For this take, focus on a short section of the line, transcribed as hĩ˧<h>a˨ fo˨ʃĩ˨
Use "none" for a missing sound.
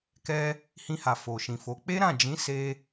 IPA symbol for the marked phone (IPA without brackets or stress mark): h